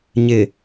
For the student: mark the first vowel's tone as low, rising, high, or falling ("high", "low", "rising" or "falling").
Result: low